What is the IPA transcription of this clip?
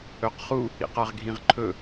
ɵqχu | ḭqaʁɡʱĩʁǃʰɵ

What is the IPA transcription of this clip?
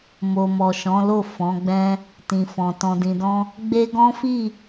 mo˨mɔ˨ʃɔ̃˨˦lo˦˨ fɔ̃˨˦ɡ͡bɛ̃˦ | tĩ˨fɔ̃˨ tɔ̃˨dĩ˨dɔ̃˧ | ɡ͡be˦ ɡɔ̃˦fi˦˨

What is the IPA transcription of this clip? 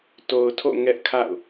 to˨ʊ̯tʰo̰˦˨ ŋɛ˦ʔkʰa̰˦˨ʊ̯

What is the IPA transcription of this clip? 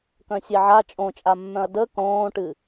kœ̃sʲeʕa t͡ʃʼõt͡ʃʼamːœ̃ɐ̯ də kõːʈɨ

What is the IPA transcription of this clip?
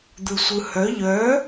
d̪ɯsʷɯhœ ʎœ

